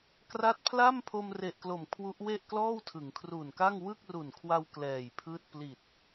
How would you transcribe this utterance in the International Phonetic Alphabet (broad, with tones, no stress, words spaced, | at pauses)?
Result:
kra˦˥t̚pʰla˥˩mpʰo˧mre˨˩ʔ klo˨˩mkʰwu˦˥ʔwe˥˩ʔ klɔː˥˩wtʰɯ˩˦ŋkʰru˨˩nka˥˩ŋ wɯ˥˩k̚ru˨˩nkʰwa˧w klɛː˨˩jpʰɯː˥˩t̚ pli˨˩t̚